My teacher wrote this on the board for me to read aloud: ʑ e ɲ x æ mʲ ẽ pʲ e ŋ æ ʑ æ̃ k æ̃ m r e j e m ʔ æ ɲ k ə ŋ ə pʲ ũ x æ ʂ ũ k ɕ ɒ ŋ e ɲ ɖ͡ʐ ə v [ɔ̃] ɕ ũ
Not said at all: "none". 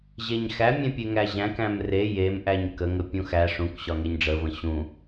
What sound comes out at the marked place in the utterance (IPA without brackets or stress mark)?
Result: ə̃